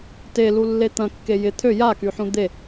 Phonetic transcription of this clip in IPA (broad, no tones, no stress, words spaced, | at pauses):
telulːe t̪ɐ̃kːe jɪ t̪ʰø jakyħũ d̪e